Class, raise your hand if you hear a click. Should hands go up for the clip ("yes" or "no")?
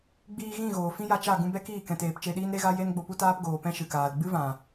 no